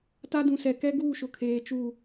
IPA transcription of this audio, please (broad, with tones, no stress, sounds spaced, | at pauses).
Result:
t a˦ d ũ˨ s ɛ˨ k ɛ˦ ɡ uː˦˨ ʃ ʊ˨ kʰ eː˨ t͡ʃ u˦˨